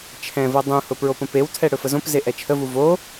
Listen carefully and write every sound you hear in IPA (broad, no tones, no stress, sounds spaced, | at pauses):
t͡ʃʰ ɛ̃ v ɤ dˤ ũ h ʊ p ɹ o p ə̃ p e w tʰ ɛ ɽ ɵ f ə z õ p z e ʔ ɛ t͡ʃʰ ə v u v o